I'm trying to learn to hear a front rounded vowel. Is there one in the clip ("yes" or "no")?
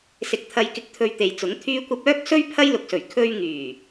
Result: yes